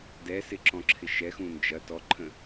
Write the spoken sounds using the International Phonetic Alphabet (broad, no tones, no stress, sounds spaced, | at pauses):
d ɛ s ɪ ǁ ɔ̃ ǁʰ ɪ ʃ ɛ x ũ n d͡ʒ ɐ t ɔ ǃʰ ə̃